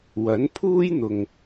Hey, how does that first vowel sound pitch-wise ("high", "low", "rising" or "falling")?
rising